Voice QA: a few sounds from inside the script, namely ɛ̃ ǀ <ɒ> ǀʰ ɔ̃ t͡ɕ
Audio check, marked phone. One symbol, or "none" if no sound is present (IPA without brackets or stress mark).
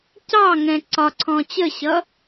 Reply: ɒ